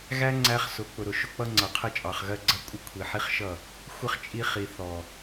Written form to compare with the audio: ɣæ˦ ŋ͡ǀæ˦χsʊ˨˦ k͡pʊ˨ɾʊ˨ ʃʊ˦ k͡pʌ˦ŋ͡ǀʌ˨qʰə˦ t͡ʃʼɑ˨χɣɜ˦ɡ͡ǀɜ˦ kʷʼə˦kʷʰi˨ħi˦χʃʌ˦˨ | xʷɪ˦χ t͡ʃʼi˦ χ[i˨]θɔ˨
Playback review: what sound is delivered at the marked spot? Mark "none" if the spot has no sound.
i˨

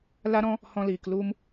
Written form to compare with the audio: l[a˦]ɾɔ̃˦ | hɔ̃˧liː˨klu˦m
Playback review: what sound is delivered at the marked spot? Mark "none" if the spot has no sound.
a˦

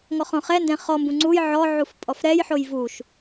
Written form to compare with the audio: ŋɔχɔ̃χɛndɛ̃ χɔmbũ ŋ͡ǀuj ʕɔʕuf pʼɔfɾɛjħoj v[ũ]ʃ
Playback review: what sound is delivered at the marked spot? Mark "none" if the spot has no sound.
u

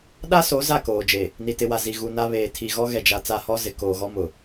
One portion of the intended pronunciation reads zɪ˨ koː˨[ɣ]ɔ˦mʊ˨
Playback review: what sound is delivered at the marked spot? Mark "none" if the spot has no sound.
ɣ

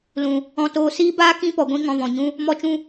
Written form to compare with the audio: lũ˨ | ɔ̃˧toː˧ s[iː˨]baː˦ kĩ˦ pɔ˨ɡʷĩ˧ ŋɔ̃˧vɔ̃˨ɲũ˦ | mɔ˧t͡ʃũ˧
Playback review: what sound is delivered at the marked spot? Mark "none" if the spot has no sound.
iː˦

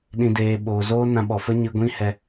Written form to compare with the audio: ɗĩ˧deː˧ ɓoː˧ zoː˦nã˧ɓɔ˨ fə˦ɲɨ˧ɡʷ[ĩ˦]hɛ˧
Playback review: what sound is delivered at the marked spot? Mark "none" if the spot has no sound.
ĩ˦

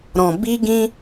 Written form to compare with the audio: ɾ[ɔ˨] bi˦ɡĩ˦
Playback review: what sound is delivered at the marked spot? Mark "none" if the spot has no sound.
ɔ̃˨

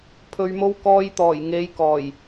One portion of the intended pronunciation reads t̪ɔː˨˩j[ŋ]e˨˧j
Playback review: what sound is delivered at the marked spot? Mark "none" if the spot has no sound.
ŋ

